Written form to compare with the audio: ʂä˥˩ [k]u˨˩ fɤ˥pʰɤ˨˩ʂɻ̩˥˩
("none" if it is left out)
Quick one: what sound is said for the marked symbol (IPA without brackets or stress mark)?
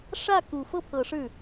k